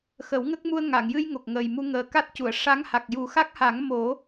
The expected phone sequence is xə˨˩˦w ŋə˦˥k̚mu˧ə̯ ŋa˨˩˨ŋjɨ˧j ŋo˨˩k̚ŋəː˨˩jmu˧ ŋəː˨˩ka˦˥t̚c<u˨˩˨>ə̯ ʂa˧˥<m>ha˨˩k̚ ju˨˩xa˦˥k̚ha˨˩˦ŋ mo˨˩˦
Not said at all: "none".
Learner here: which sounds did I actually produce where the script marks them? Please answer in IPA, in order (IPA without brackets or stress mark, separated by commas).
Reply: u˨˩˨, ŋ